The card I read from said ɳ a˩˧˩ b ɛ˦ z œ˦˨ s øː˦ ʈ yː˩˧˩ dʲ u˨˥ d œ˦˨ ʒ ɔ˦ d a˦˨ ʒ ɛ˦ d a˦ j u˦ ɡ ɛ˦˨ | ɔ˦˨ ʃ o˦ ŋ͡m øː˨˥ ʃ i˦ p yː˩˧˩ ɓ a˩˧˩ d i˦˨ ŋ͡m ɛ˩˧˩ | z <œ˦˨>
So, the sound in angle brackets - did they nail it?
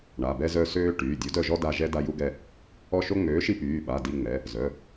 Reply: no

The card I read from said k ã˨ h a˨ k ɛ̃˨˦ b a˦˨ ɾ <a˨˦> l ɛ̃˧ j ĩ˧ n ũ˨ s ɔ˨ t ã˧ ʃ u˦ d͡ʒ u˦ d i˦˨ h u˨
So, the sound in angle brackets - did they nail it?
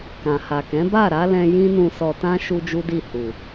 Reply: yes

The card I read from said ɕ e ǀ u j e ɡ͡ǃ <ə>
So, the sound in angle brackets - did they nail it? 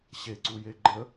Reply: yes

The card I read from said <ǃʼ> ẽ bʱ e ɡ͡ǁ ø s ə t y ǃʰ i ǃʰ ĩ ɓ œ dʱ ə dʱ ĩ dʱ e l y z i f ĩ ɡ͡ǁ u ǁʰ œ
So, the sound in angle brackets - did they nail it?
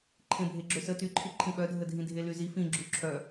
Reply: no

